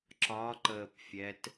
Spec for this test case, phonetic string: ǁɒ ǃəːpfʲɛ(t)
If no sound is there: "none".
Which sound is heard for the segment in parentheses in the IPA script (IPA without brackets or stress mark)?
t